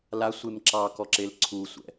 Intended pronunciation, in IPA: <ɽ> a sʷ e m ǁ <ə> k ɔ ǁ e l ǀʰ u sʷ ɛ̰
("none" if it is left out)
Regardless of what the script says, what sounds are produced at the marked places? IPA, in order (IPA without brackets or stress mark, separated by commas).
l, ɑ